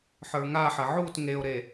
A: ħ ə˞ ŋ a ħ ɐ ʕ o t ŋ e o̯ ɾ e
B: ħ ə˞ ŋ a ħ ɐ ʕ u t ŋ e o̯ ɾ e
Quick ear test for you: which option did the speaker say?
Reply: B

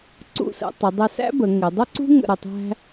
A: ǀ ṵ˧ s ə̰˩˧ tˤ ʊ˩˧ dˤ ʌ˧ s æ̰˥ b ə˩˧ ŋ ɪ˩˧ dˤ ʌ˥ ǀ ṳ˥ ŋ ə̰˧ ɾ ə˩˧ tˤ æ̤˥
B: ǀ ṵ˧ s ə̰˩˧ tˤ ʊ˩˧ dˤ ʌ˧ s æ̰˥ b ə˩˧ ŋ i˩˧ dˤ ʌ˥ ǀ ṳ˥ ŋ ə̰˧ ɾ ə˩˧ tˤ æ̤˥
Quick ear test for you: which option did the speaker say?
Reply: A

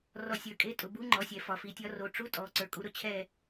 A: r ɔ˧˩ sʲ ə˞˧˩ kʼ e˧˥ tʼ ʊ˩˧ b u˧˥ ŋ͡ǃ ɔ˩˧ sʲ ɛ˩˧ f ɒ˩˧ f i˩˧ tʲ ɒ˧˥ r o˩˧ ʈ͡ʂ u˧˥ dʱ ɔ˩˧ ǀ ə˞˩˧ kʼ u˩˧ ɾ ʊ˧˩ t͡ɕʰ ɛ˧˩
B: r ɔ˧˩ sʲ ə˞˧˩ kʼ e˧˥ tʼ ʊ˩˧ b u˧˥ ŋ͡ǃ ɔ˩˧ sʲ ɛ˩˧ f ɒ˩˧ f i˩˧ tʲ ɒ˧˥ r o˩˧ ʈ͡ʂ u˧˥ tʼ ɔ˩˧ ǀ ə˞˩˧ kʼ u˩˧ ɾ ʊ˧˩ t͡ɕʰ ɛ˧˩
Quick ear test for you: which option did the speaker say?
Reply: B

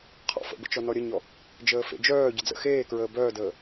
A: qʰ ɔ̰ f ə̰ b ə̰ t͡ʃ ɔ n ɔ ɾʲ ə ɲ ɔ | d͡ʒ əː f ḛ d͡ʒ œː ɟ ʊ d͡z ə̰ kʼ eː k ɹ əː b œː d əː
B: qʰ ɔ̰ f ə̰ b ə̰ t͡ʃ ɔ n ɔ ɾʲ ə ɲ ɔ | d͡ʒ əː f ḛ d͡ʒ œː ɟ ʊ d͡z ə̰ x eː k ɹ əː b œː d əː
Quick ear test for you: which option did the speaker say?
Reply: B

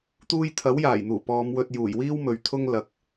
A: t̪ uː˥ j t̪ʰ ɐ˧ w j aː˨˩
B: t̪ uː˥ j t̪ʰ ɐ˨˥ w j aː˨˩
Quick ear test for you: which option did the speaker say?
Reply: B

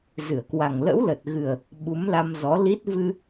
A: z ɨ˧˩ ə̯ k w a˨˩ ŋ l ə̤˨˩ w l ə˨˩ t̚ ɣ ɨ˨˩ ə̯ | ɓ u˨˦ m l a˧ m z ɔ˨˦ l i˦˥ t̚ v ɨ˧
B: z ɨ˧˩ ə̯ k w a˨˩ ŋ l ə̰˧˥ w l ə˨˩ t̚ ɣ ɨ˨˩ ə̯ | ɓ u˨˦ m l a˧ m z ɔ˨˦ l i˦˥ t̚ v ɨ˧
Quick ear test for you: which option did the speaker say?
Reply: B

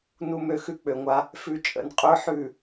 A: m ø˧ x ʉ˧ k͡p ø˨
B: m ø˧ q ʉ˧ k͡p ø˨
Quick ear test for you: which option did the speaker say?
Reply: A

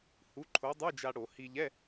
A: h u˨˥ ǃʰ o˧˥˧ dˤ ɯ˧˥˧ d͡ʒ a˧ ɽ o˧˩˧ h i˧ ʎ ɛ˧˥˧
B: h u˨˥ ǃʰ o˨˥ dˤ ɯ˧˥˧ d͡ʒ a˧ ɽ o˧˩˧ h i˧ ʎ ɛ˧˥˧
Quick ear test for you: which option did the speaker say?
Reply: B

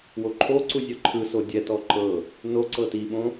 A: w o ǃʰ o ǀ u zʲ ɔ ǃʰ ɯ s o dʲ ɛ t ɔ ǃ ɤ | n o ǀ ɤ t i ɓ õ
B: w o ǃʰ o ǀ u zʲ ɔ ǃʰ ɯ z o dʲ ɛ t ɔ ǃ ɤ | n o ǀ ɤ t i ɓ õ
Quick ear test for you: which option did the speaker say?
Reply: A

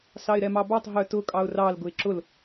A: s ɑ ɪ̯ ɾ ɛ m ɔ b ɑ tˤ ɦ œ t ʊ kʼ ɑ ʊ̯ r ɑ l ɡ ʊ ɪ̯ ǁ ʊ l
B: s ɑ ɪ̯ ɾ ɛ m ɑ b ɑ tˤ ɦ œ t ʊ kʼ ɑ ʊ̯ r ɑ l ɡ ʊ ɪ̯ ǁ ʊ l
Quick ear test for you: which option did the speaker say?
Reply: B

